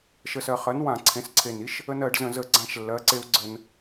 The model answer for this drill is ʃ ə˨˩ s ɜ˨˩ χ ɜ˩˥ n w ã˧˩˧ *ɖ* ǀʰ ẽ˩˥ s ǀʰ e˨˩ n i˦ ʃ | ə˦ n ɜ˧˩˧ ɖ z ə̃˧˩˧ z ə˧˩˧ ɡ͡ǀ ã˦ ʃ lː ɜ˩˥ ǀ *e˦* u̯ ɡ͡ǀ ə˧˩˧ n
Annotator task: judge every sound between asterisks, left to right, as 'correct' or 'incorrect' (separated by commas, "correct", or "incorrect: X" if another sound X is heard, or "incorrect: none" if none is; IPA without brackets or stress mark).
incorrect: none, correct